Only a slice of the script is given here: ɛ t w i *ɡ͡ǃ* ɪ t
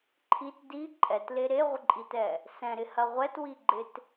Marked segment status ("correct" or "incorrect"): correct